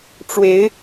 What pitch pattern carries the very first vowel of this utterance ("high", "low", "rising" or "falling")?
rising